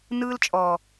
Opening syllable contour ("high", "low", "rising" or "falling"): high